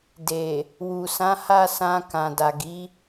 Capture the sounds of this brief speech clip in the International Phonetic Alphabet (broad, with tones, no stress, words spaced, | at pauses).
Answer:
de˨ | wu˨ sã˨˦ha˦˨sã˧ kã˨da˨ɡi˨˦